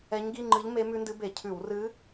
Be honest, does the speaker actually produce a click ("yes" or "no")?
yes